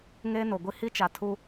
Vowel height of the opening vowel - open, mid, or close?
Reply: mid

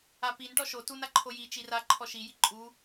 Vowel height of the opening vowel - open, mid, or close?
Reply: open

